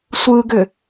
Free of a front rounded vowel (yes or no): no